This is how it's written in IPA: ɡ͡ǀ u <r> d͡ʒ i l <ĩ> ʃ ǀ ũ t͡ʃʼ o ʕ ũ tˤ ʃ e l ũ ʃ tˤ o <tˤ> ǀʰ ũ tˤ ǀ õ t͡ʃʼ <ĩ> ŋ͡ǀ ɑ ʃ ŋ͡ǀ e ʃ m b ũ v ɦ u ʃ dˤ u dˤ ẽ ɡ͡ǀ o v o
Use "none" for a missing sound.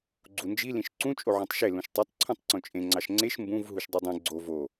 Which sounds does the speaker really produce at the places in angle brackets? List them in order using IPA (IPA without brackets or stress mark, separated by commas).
n, ĩ, tˤ, ẽ